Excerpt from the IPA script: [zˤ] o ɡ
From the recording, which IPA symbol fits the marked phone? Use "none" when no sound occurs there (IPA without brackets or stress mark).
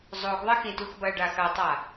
zˤ